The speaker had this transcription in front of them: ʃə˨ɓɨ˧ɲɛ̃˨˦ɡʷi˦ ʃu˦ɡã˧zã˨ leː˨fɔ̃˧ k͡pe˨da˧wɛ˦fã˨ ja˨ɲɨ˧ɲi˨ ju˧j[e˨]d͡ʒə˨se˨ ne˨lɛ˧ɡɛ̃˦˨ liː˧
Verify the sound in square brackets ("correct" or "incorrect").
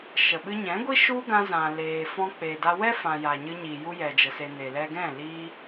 incorrect